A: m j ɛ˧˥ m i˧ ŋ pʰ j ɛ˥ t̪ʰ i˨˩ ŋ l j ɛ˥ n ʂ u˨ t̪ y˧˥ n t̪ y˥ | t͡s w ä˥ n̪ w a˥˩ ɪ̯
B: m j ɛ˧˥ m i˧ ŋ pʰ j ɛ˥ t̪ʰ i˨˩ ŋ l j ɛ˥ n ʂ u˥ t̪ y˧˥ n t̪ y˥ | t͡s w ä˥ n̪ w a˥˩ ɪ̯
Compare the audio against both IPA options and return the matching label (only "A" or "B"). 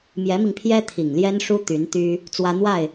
B